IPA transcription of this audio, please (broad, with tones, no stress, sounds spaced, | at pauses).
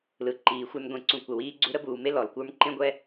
l ɯ˨ ǃ iː˨ xʷ ə˞˦ n ɡʷ ẽ˨ ǀ ũ˨ kʷ ə˩ w iː˦ ɡ͡ǀ u˦ ɾ ə˥ b uː˨ m e˥ l ɔ˩ l kʷ ə˞˥ m ǃ ẽ˥ ɡʷ ɛ˥